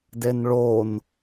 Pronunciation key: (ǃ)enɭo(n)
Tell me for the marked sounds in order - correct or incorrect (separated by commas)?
incorrect, correct